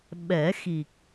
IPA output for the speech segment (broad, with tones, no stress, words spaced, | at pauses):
ɓɛ˨˩˦xi˨˩k̚